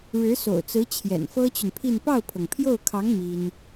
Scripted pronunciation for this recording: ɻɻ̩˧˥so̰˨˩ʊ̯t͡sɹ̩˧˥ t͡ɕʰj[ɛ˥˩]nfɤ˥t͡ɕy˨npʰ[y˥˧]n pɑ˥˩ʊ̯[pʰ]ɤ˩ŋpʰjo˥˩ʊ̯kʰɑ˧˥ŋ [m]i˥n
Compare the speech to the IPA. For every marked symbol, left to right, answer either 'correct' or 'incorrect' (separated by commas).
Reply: incorrect, incorrect, correct, correct